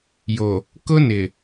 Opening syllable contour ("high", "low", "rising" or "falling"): low